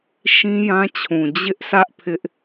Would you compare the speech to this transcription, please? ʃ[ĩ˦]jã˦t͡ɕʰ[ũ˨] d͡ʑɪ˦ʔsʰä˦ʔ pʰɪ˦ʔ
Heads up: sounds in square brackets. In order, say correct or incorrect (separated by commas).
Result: correct, correct